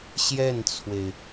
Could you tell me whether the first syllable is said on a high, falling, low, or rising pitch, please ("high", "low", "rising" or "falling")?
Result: falling